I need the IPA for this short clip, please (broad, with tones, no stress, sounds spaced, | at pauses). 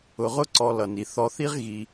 ʊ˩ ʁ ʊ˦ ǀ ɔ˨ l ʌ˩ n i˩ θ ɔ˨ θ i˦ ʁ ɣ i˨